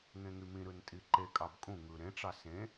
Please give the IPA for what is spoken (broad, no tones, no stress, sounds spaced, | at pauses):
ŋ ẽ ŋ y m ĩ ɾ ɯ n tʼ i ǃ e kʼ ɑ b kʼ ũ ŋ ɯ ɾ ẽ ʈ͡ʂ ɑ s ẽ